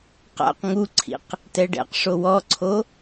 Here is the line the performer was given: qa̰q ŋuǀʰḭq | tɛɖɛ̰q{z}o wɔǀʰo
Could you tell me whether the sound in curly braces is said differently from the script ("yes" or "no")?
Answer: yes